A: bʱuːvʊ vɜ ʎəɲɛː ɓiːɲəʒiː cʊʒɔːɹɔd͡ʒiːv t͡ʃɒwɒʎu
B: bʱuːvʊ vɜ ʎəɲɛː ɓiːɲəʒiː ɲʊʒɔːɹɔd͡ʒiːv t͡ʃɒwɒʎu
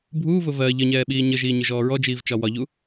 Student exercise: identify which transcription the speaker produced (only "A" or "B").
B